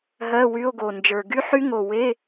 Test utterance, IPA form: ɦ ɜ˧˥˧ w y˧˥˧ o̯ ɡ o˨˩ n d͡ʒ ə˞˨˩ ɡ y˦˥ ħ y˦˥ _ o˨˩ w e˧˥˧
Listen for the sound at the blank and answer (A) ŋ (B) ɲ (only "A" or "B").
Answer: A